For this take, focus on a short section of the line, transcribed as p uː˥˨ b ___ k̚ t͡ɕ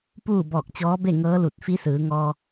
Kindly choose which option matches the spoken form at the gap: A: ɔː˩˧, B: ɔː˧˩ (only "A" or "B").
B